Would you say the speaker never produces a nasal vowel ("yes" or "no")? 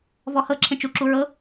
no